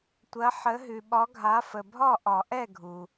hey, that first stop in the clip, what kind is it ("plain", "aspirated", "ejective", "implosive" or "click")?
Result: plain